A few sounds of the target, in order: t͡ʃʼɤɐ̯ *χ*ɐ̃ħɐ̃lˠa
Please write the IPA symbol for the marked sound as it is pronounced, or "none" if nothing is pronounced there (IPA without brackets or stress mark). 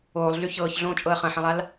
χ